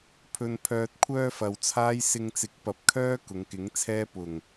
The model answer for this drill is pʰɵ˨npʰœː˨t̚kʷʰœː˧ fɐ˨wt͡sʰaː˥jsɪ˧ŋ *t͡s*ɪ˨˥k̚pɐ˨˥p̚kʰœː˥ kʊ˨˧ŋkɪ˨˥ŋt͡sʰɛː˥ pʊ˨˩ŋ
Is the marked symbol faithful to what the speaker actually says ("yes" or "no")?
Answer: yes